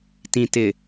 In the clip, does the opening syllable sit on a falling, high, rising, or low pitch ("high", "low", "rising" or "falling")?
low